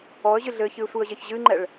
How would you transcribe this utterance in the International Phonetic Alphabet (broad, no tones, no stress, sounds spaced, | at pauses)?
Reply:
ɔ ə̯ ʑ ɨ ɮ ɘ ç ɨ ɪ̯ sʷ ɨ ə̯ ʑ e ç ʑ ɨ ŋ͡ǃ ɛ ɭ